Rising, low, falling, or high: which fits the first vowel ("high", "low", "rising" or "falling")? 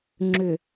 low